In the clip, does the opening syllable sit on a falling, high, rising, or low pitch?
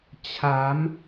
rising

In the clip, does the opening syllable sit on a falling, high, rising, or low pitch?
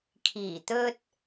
low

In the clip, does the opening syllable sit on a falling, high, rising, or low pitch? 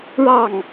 falling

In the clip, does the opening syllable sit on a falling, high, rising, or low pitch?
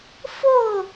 falling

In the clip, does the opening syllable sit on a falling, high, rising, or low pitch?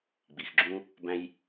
low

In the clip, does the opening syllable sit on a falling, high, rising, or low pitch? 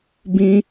high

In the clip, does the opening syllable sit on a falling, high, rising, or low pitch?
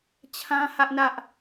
high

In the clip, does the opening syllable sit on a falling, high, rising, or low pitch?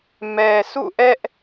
low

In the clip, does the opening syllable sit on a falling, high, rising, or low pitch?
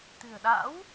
low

